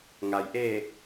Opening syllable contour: low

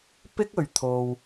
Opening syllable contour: high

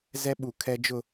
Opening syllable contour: high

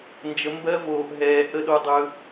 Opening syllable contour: rising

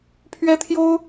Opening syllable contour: high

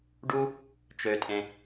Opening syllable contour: high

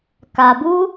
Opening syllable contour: low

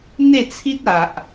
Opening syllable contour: falling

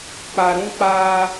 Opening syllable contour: low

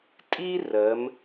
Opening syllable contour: high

